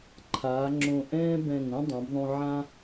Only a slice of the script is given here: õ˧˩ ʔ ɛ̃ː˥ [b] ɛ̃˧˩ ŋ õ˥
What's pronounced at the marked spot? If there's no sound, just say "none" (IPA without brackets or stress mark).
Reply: b